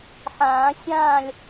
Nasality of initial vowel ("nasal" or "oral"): nasal